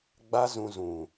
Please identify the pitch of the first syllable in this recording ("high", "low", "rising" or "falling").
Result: high